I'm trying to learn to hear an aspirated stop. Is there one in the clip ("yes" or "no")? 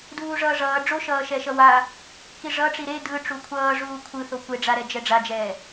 yes